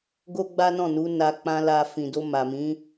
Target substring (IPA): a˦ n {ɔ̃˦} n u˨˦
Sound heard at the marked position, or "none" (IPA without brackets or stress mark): ɔ̃˦˨